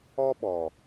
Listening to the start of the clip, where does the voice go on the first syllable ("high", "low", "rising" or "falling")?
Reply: high